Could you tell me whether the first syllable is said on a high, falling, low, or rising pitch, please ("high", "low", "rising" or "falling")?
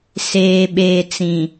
low